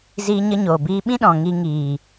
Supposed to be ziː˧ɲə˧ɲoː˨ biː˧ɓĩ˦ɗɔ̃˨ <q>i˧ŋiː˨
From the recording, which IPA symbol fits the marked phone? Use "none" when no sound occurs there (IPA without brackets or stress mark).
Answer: ŋ